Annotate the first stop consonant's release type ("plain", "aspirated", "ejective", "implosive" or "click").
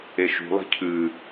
aspirated